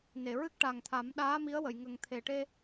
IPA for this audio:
ne˨˩˨ ɹɨ˦˥k̚ʈa˨˩ŋt̪ʰa˨˩˦mɗaː˧˥ mi˧˥ə̯wə˨˩˨j ŋə˨˩ŋt̪ʰe˨˩ʈe˧

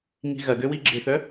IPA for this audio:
ŋi̤ɣɐ ɡøwiɡ͡ǁɪθœ

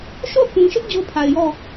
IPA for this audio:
ʃo˦˨θũ˨ʃɪ˦ʔ d͡ʑo˦pʰa˨ɪ̯jɔ˦˨

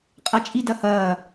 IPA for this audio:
qʼat͡ʃʼidɐhɐː

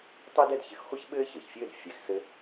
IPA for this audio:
tˤe˥dɛ˥˧d çɘ˨˥xχʷe˥ç ɓɘː˥çɘː˩çfʲɘː˥˧d fʲɛ˧˩x sɘ˥

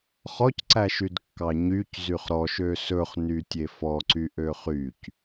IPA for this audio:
χɔcǀæʃydkːɑ ɲyc zyχɾɔʃø sɵχ nytʲefɔǀy ʔøχyc

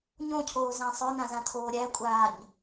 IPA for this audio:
ɲõcʰoːzæ̃ sˤœnãzãtʰoː ɾʲækʷʼaːɲ

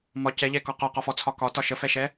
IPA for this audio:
mɒ cɛʎɛkɔ qɒqɒfɔt͡sʰɒ kɒtɒ ʃəfɛʃɛ

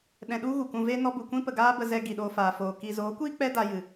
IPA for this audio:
ɗɛ̃˧ɗu˦ɣu˨ kũ˧ve˦nɔ˦ bu˨kʷĩ˦pə˨ ɡaː˦bə˧zɛ˧ ɡi˨ɗoː˧faː˨foː˨ ki˨zoː˨˦kʷiː˦ k͡pɛ˦ da˧jɨ˨

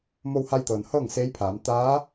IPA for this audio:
mo˧wha˧jt̪ɤː˩nhɤː˥˨ŋ se˧˥jpʰaː˩˧m t̪aː˧˥

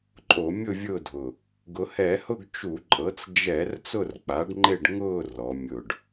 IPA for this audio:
ǃʼo˧˩˧mʲʊ˦˨vʲʊ˦˨dʱʊ˨˩ | ɡʊ˩˧hɛ˧˩˧hʊ˦˨ɡ t͡ʃu˧˩˧ǃʼɤ˩˥t͡s d͡ʒɛ˧˩˧r t͡sʊ˦˨rk͡pa˩˥ɖŋ͡ǃe˦˨ɖ ŋʊː˦˨ rɔ˩˧ mʲʊ˨˩ɖ

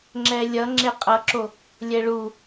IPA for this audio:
ŋ͡ǁɛlʲʌ ŋ͡ǁeqʼʌǁo | lʲɛɭu

